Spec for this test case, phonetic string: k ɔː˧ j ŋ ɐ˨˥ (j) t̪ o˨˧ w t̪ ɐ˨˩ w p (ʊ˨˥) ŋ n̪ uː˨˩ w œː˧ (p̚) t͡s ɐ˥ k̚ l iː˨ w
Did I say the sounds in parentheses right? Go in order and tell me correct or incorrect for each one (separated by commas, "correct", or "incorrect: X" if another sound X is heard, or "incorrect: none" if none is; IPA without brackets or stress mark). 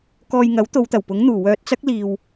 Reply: incorrect: w, correct, incorrect: t̚